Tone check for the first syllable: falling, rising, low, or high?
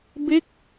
falling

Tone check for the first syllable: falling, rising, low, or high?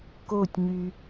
falling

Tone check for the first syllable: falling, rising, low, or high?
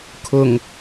low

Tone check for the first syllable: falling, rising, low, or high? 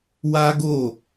high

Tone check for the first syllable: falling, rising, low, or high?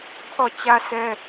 falling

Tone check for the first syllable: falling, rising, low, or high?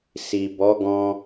low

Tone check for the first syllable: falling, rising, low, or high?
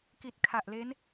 low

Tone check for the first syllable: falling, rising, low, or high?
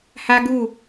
high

